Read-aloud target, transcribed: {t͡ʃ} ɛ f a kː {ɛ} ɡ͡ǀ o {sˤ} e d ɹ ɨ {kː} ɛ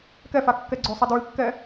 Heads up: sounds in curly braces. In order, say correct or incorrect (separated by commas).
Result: incorrect, correct, correct, correct